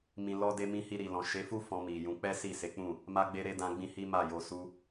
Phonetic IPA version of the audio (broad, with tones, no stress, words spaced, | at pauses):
mĩ˨lɔ˧de˧mĩ˧ hi˧ɾi˨lɔ̃˨ ʃe˨˦fu˦ fɔ̃˧mi˨jũ˨˦ k͡pɛ˦si˦˨se˨˦k͡pũ˦˨ | ma˧ɡ͡be˧ ɾe˧ dã˧ɡ͡bĩ˧ hi˦ma˦˨jo˧ su˧